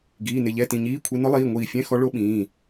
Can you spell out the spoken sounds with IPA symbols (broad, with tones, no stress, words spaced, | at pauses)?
ɡiː˩˧˩nɪ˧˩ ʎɛ˧˥˧tĩ˩˧˩ɲiː˧˥˧kʷʰe˧˥ nʊ˧˥lˠiː˩˧˩ŋʷiː˧˩fʲɛ̃˧˥˧ xɔ˧˥ɭo˧˥ɓĩː˩˧˩